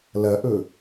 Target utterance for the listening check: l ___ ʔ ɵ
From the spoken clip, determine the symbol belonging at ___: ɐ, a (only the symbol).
ɐ